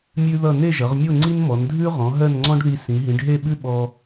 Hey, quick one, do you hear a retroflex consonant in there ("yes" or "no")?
yes